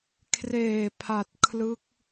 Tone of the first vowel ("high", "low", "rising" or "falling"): low